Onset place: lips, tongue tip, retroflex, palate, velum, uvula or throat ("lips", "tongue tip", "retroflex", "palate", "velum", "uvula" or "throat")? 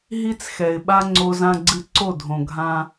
throat